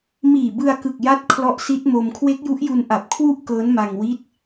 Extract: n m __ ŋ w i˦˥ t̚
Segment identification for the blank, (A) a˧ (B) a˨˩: A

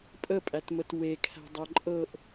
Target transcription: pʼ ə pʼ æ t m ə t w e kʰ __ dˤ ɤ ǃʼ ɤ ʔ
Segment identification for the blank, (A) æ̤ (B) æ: A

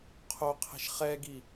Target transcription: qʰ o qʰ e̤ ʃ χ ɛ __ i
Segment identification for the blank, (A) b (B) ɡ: B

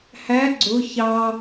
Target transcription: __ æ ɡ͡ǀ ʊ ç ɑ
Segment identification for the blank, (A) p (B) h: B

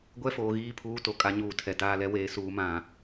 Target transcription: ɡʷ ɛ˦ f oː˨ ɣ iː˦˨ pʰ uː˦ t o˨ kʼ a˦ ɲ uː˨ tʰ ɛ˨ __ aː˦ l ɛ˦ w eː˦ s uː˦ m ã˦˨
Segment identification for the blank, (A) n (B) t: B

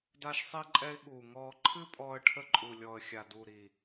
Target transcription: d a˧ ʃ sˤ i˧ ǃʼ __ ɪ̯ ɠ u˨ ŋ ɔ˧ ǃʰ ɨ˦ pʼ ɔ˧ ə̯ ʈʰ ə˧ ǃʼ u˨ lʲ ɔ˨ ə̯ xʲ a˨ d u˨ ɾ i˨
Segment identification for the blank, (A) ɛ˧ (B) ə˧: A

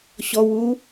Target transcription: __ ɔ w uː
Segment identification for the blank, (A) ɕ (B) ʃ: A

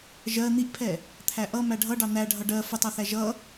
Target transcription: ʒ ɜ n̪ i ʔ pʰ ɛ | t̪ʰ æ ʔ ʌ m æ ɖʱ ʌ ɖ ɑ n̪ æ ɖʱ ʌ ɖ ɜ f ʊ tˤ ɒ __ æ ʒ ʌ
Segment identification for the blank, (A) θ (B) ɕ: A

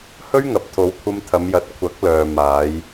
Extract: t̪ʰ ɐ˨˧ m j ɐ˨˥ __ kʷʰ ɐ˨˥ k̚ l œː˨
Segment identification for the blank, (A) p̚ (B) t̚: B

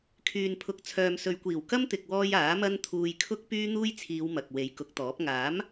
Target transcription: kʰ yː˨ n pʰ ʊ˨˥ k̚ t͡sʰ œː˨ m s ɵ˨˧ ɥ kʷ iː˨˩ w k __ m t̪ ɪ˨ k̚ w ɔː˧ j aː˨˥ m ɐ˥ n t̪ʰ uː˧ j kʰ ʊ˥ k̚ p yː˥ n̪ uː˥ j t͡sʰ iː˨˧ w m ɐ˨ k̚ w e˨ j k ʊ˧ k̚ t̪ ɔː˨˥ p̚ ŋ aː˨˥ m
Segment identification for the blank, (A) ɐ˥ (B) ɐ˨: A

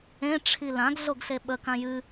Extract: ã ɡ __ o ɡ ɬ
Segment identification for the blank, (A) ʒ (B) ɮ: B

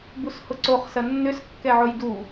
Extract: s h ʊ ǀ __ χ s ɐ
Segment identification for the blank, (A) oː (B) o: B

